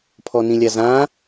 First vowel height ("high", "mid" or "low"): mid